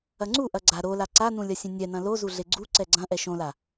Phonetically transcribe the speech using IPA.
ɐŋ͡ǀu ʔɐɡ͡ǀa ɾola ǀanũlʲɐsʲẽ nʲɛnɐ̃ lozu ɮeɡ͡ǀu ǀɛɡ͡ǀɐ̃ ʔɛʃõla

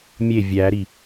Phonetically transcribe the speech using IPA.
mʲe vʲæɾi

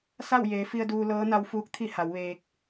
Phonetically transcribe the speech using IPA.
sa˥˨wjeː˩˧fi˧ə̯duː˧ lɤː˧˥na˧˥w fuː˧˥k̚t̪ʰi˥˨ha˩˧wʋeː˧k̚

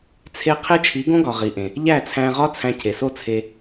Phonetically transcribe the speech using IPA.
t͡sʰe˦ qʰe˦t͡ʃʰi˨˦ɡõ˦ɡɒ˨ ʁi˨ʔẽ˨ | ʎæ˦˨t͡sʰæ̃˧ʁɒ˦ t͡sʰæ̃˧cʰe˨so˦t͡sʰe˧

